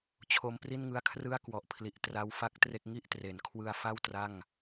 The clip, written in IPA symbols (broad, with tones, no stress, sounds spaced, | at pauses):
t͡ɕʰ o˧ m p r i˥˩ n ŋ ɯ˦˥ a̯ kʰ r ɯ˥˩ a̯ k w ɔ˨˩ ʔ pʰ l i˨˩ ʔ t r a˦˥ w f a˥˩ k̚ t r e˥˩ k̚ ŋ i˥˩ ʔ t r e˩˦ n kʰ w ɯ˧ a̯ f a˥˩ w t r a˥˩ ŋ